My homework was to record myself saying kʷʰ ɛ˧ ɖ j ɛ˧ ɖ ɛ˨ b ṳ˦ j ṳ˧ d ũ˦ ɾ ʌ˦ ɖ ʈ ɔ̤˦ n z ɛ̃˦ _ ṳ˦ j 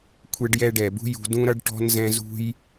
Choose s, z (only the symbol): z